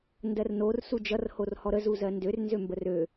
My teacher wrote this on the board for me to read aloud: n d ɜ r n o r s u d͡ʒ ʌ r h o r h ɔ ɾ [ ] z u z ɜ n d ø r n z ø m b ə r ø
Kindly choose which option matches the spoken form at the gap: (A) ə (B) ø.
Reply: A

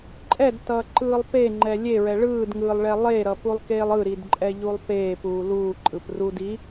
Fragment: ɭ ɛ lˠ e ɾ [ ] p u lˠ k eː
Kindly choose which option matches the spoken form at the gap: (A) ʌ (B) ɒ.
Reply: A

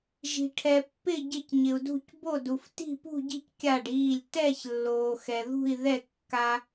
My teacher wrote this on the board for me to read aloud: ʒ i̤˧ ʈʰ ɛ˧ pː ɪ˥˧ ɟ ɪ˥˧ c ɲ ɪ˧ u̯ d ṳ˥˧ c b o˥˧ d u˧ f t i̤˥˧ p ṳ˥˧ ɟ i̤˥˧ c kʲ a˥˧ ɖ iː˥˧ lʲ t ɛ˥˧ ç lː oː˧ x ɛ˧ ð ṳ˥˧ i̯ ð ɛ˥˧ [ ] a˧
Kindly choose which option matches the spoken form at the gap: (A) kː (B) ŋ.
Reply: A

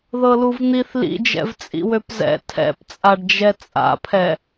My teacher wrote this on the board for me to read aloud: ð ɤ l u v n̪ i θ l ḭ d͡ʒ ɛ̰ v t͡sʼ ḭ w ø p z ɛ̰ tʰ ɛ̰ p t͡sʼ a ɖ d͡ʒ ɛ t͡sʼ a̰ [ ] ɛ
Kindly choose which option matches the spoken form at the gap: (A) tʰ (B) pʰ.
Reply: B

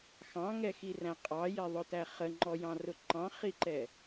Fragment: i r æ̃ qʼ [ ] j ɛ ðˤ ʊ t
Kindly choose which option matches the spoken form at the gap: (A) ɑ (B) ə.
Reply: A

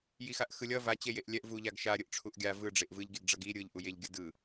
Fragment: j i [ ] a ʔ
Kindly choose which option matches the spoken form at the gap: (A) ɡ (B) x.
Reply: B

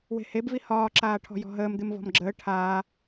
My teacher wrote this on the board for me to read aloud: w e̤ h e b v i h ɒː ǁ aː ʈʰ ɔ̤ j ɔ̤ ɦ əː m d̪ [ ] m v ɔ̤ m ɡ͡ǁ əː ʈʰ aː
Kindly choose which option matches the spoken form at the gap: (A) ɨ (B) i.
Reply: A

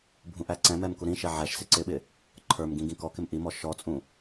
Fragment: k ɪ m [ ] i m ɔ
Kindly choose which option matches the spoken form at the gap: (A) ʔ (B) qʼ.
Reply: A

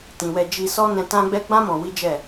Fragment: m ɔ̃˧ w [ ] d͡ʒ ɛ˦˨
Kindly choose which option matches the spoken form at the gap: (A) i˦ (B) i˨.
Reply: A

